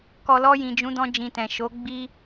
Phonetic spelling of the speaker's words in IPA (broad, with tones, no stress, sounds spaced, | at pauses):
k ɔ˨ l ɔ˧ j ĩ˨ d͡ʒ ũ˨˦ d ɔ̃˧ d͡ʒ ĩ˨ t ɛ̃˨ ʃ o˨˦ ɡ͡b i˦